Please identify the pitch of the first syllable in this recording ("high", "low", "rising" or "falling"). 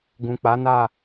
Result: low